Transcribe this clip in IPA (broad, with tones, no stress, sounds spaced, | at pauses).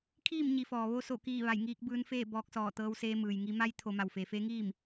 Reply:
kʰ iː˥˨ m ɲ i˩ f ɔː˩ ʋ o˧ s o˧˩ k iː˧˩ ʋ a˧˩ j ŋ iː˧ k̚ b ɯː˧ n f eː˥˨ b ɔː˧ k̚ s ɔː˧˩ t̪ ɤː˧ w s eː˧ m ɯː˩ j ŋ i˧ m a˧˥ j t̪ʰ o˩˧ m a˩ w f eː˩ f eː˧˥ ŋ iː˥˨ m